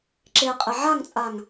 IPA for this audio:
ǁ e qʼ e ʕ a ŋ t͡sʼ a ŋ

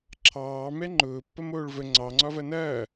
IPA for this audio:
ǁʰ ɑː m ɛ ŋ͡ǃ ʊː pː ɐ m oː ɭ v ə ŋ͡ǀ ɑ ŋ͡ǀ ɒ v ɐ n ɐː

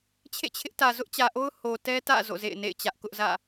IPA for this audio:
t͡ɕʰ ḛ˦˨ t͡ɕʰ ɪ˦ ʔ t ä˨ z ʊ˦ ʔ t͡ɕ ä˨ ʔ o˦ ʊ̯ h o˨ t ɛ˦ t ä̰˦˨ z o̰˦˨ z ḛ˦˨ ɪ̯ n ḛ˦˨ ɪ̯ t͡ɕ ä˦ ʔ k ʊ˦ ʔ z ä̰˦˨

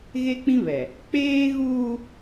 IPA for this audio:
ɣ e˦ k͡p ĩ˦ β ɛ˨ | k͡p eː˦ ɣ uː˦

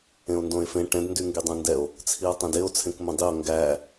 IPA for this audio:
ẽ o̯ n d õ e̯ f ẽ ʈ ɛ̃ d n d y ŋ ɡ y dˤ õ n d ɛ o̯ | t͡sʰ i o̯ tˤ ẽ d e o̯ t͡sʰ ẽ k m õ dˤ i o̯ ŋ ɡ æ

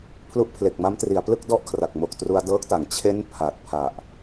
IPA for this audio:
pʰ l u˦˥ ʔ pʰ l e˨˩ k̚ m a˦˥ m t r i˩˦ a̯ p l ɯ˥˩ k̚ d ɔ˥˩ ʔ kʰ r a˨˩ k̚ m o˨˩ k̚ t r u˧ a̯ d ɤː˦˥ k̚ t a˩˦ ŋ t͡ɕʰ e˦˥ n pʰ a˨˩ t̚ pʰ a˨˩ ʔ

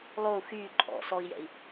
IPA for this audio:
lˠ o u̯ x yː ǃʼ ɔ̰ s ɔ i̯ j ɛ̰ i̯

